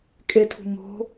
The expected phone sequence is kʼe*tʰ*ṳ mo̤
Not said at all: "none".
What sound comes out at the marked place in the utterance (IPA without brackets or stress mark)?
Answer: tʰ